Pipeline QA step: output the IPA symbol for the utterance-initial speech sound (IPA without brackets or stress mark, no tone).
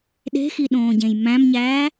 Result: ɗ